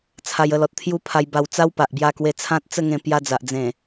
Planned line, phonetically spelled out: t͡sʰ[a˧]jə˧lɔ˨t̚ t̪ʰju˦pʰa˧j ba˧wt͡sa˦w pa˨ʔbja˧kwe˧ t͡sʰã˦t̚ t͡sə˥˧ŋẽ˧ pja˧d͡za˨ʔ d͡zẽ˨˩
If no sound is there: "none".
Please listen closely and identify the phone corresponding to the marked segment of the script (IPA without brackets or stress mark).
a˧